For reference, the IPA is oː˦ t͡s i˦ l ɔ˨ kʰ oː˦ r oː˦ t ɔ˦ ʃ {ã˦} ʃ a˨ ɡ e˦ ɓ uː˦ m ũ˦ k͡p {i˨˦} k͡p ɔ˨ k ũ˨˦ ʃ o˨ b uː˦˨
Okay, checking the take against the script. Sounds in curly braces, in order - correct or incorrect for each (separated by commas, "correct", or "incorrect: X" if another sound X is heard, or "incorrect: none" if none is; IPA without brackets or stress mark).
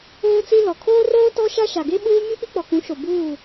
incorrect: a˦, incorrect: i˦